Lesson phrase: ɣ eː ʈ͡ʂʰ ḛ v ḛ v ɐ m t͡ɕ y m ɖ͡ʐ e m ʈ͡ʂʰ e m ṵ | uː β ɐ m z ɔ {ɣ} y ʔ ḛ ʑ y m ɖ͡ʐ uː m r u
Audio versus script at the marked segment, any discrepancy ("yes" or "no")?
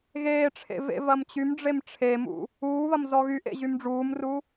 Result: no